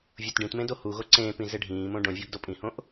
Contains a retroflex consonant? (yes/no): yes